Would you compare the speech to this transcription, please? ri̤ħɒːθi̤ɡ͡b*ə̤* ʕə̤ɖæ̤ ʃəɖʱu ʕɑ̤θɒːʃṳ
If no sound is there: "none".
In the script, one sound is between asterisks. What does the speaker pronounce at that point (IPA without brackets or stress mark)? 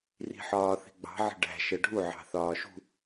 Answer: ɑ̤